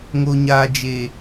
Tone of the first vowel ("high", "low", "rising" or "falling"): high